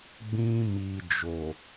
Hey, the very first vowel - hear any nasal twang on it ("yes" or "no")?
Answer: yes